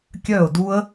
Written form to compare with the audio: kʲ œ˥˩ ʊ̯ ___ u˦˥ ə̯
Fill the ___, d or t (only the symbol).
d